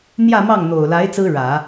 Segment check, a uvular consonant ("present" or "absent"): absent